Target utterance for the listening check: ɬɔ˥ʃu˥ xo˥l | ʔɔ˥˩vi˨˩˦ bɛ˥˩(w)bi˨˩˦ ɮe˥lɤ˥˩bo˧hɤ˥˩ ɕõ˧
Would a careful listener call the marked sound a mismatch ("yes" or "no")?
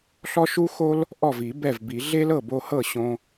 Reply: yes